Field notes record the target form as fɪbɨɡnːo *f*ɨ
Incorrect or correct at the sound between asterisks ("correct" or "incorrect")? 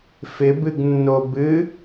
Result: incorrect